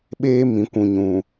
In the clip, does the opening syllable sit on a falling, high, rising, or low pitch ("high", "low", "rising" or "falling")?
high